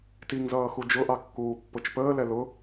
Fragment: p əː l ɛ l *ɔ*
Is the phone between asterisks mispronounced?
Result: yes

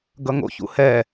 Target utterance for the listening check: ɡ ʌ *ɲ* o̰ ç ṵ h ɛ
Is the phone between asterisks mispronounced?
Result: yes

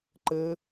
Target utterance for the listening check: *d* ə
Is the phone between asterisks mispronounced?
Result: yes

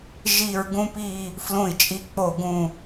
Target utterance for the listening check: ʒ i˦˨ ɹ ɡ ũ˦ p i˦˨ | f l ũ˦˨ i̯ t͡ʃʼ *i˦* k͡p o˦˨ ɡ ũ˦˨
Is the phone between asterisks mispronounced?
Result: no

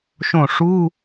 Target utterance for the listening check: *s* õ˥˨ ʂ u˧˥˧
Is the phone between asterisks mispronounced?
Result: yes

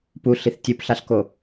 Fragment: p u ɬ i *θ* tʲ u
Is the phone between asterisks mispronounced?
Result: no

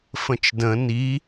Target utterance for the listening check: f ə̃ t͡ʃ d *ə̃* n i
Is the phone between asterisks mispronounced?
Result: no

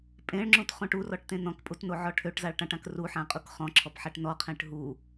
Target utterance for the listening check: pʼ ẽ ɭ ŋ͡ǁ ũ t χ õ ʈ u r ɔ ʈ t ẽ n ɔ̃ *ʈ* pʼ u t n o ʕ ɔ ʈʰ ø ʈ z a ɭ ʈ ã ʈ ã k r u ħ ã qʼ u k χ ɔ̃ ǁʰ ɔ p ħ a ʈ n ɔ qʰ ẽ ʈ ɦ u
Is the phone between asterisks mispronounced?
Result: yes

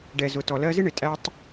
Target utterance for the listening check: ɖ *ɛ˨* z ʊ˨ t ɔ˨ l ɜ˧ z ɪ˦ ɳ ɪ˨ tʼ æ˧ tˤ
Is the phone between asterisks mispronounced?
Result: no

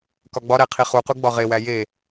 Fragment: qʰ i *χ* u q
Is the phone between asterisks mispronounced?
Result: no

